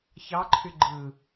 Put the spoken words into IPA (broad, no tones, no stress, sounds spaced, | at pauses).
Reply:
ç ɑ ǃʰ y ɡ͡ǃ ɯ